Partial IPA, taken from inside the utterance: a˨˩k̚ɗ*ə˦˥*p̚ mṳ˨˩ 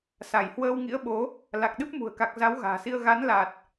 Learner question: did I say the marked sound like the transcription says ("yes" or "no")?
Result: no